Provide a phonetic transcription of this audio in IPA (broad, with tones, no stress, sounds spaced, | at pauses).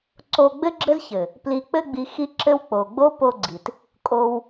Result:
ǀ o˧ ɡ͡b ɘ˦ ɡ͡ǁ ɘ˦ z ç ɘ˨ | p l i˨ k͡p ɘ˧ ɡ͡b i˨ x i˧ ǁ ɘ˧ w k͡p o˨ ɡ͡b o˦ p o˧ ɡ͡ǀ i˨ t | kʼ o˧ w